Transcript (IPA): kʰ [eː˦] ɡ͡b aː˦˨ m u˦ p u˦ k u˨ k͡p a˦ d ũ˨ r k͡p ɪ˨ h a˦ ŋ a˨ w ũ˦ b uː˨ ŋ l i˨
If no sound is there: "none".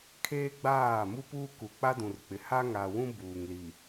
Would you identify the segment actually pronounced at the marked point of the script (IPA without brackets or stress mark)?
eː˦